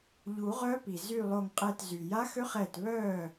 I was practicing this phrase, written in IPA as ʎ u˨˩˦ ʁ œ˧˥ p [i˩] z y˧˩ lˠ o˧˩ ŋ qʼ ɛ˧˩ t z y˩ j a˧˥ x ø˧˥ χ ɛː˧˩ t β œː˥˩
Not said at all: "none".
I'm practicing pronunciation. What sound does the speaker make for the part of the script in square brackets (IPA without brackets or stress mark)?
i˩